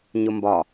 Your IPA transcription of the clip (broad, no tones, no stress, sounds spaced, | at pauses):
ɲ ʊ m b ɒ